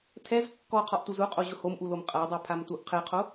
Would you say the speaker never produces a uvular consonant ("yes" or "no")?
no